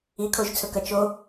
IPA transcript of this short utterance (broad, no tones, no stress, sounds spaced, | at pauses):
i kʰ o ʒ t͡sʰ ɵ k ɐ t͡ʃ o